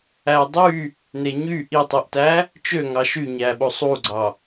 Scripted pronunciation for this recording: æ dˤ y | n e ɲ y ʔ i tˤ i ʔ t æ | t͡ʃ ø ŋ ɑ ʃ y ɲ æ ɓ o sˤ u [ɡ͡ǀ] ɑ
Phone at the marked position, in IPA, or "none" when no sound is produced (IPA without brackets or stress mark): ɡ͡ǀ